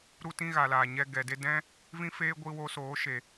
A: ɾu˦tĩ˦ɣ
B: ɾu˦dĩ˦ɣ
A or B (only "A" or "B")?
A